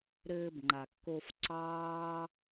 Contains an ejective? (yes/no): no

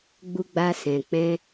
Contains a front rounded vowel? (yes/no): no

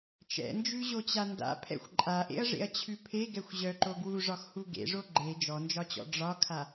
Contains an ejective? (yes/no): yes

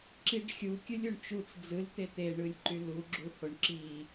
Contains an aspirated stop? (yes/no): no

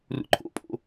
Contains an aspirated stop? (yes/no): yes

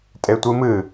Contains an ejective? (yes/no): yes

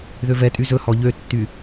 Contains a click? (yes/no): no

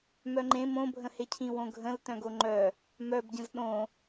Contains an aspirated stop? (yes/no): yes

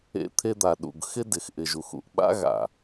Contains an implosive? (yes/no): yes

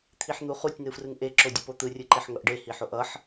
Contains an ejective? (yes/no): no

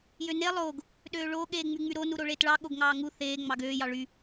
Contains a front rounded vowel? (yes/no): yes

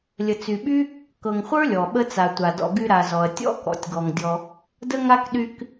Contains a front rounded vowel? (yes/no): yes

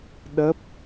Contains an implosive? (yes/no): yes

